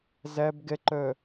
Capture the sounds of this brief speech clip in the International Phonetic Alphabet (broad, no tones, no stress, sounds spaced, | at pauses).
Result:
z æ b ɡ ɛ ǃ œ